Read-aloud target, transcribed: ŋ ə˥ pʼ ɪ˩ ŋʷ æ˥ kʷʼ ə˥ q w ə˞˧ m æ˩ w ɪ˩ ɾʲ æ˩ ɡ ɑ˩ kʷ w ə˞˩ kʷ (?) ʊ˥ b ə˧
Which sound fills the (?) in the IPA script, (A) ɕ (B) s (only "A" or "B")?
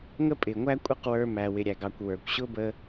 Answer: A